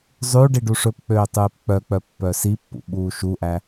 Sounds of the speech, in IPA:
zˤ ʉ ɖ i ɖ u ʂ ɵ p k͡p øː tˤ ʉː p k͡p œ k͡p œ pː œ s i pː ṵ ɓ uː ʃ u ʔ æ

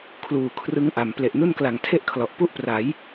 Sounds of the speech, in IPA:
kʰ l uː˨˩ kʰ r ɯ˦˥ ŋ ʔ a˩˦ m p l e˨˩ ʔ n u˥˩ n k l a˨˩ ŋ tʰ e˥˩ ʔ kʰ l ɔ˨˩ ʔ p u˥˩ ʔ p r a˩˦ j

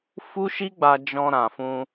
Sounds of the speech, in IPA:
f u˦ ʃ i˦ ɡ͡b a˧ d͡ʒ ɔ̃˧ ɾ ã˨ f ũ˧

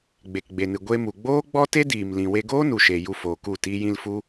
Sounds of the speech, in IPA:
ɡ͡b e˨ k ɡ͡b e˨ n ɨ˨ ɡʷ e˧ m u˨ ɡ͡b oː˦ ɡ͡b ɔ˦ t e˦ d iː˨ m l ĩ˨ w e˧ ɡ oː˦ n u˨ ʃ e˨ j u˧ f oː˨ k u˦˨ t iː˧ j ĩ˧ l f u˦

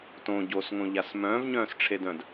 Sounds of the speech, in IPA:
t õ ɟ o s ŋ õ ʎ a s m œ̃ː v ɲ œ̃ː s ʈ͡ʂʰ e d œ̃ d

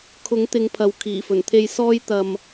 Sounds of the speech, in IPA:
kʰ ʊ˨˥ ŋ t̪ ɪ˨˧ ŋ pʰ ɐ˨ w kʰ iː˨˩ f ɵ˨˩ n t̪ʰ e˧ j s ɔː˥ j t̪ ɐ˧ m

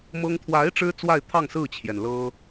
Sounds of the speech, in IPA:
m ɤ˥ ŋ t̪ʰ w a˧˥ ɪ̯ ʈ͡ʂ ɻ̩˥ t͡s w a˥˧ ɪ̯ t̪ʰ ɑ˥˧ ŋ s ɹ̩˥˩ t͡ɕʰ j ɛ˩ n l ɤ˥

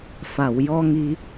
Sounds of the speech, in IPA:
f a˨˩˨ w j ɔ˧ ŋ i˧

